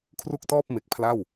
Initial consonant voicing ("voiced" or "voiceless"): voiceless